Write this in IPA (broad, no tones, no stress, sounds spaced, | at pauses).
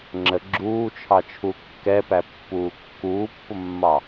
ŋ͡ǁ ə ɡ͡ǁ uː t͡ʃʰ ɑ t͡ʃʰ u kː ɛ p æ pː uː kː uː pː ʊ mː ɑ